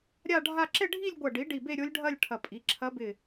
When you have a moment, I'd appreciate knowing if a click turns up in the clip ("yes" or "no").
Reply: yes